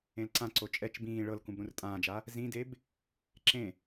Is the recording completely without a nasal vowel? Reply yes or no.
no